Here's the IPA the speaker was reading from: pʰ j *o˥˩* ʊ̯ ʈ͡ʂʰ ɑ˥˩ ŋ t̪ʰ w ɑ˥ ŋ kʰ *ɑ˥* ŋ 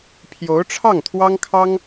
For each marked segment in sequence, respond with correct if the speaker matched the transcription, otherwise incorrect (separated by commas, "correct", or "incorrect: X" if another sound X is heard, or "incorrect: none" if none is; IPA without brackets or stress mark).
incorrect: o˧˥, correct